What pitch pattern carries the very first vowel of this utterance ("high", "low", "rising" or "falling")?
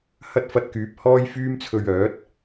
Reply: high